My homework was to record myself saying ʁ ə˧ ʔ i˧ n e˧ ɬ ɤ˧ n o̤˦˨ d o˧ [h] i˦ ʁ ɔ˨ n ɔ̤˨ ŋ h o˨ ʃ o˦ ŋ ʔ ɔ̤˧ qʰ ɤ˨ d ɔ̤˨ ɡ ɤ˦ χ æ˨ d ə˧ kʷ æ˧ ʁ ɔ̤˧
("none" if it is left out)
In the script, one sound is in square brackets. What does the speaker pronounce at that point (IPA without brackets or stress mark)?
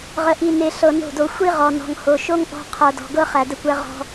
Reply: xʷ